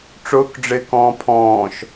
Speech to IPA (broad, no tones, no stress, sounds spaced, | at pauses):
ʈ͡ʂ ʊː k ɖ͡ʐ ɪː k ɔ̃ː pʰ ɔ̃ː ʃ